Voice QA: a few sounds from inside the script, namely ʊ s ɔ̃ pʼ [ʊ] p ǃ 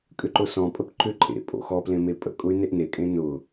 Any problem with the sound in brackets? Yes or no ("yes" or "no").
yes